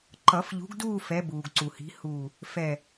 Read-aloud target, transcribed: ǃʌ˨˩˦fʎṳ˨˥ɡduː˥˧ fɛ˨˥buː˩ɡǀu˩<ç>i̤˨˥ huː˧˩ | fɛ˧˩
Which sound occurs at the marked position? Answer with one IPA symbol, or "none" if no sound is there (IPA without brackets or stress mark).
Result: h